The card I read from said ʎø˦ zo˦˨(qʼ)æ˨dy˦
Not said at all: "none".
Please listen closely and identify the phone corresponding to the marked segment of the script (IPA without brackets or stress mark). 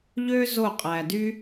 qʼ